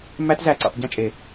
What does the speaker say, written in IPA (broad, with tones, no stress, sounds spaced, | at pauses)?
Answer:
m æ˦˥ t z æ˧˩ ǀ ḭ˧˩ tˤ ɟ ĩ˥˨ t͡ʃʼ e˨˩˦